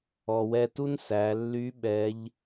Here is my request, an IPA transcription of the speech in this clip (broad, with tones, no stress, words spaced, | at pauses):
ɔ˩wɛ˧tu˥n sæ˩˧lːy˧˥ ɓɛ˧˥ʎ